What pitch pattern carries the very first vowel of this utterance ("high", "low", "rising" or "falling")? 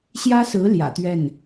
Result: high